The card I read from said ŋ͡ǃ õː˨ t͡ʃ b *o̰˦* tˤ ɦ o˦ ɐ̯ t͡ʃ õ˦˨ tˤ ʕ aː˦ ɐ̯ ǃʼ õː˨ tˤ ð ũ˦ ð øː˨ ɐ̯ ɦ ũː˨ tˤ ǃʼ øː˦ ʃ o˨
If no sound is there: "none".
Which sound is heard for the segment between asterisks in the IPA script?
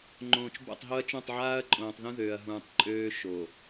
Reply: o̰˦˨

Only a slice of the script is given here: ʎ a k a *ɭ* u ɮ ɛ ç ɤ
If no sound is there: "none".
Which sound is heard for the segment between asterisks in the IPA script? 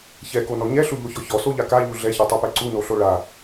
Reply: ʎ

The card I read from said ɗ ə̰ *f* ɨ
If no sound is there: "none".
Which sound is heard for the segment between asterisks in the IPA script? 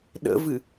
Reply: v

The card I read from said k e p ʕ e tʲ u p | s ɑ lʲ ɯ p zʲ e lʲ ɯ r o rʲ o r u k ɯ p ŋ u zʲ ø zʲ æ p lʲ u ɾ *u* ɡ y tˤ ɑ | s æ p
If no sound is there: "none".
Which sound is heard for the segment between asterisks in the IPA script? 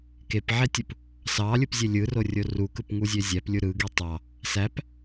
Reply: ɯ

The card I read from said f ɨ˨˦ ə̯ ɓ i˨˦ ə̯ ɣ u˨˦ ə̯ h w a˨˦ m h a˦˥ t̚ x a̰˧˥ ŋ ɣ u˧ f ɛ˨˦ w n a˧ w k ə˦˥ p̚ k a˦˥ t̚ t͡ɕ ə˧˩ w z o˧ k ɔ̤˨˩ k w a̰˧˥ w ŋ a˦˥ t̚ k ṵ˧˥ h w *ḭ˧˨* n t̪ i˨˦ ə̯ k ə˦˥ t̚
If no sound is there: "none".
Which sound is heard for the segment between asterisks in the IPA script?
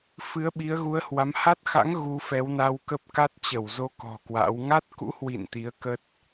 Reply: ḭ˧˨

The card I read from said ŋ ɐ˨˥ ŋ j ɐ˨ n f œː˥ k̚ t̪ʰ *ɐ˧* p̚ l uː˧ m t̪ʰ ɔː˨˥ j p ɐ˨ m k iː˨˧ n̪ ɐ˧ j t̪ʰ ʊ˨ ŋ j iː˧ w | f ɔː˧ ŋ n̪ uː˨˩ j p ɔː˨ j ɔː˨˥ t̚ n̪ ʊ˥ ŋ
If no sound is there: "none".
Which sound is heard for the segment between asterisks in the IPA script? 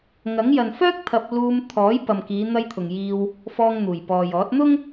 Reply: ɐ˧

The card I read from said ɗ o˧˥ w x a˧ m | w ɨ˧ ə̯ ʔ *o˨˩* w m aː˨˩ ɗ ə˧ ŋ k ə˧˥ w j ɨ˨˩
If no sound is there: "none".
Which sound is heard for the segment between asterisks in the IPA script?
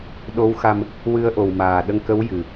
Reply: o˨˩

